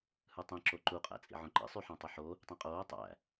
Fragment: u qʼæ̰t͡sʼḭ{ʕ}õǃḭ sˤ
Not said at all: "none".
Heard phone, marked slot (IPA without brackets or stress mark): ʕ